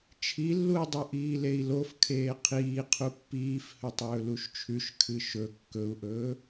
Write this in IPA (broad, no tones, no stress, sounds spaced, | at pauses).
t͡ʃʰ i lː u i̯ dˤ o ʔ iː l e i̯ l o f kʰ eː qʰ iː qʰ u pː iː f h ɵ tˤ ɵː l u ʃ t͡ʃʰ ʉ ʃ kʰ ɨ ʃ ɵ kː ɵ u̯ ʔ ɵː